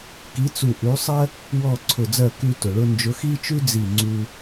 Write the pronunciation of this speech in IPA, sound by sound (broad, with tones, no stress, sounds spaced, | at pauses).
k i˨˥ t͡s u˧˩ ʔ ʉ˨˥ sˤ ɜ˥ | w ɔ˥˩ ǀʰ ʊ˧˩ d͡z ɜ˥˩ k ʉ˧ t ʊ˩ ɭ ʊ˧ n d͡ʒ ʊ˨˥ x i˥ t͡ʃ ʉ˥ d͡z i˧˩ ŋ͡ǀ u˧